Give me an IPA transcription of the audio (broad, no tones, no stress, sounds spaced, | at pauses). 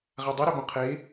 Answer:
ʁ a dˤ ɨ ɾ e b õ qʰ e